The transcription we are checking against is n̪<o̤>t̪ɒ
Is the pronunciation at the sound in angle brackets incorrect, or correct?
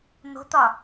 correct